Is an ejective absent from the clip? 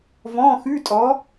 no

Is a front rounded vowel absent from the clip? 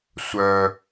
no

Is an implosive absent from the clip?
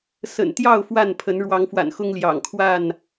yes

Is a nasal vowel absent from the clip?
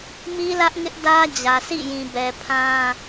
no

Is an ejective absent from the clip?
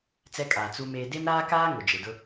no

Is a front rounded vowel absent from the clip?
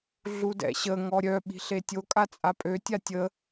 no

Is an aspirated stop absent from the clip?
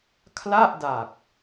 no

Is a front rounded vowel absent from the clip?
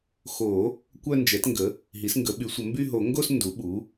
no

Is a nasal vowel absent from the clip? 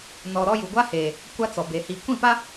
no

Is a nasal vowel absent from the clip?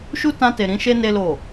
no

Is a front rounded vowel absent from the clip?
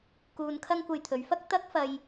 yes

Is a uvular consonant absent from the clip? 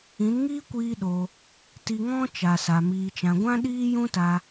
yes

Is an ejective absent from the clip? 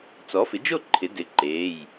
yes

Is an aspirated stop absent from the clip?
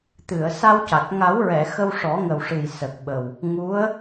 yes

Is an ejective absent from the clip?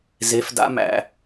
yes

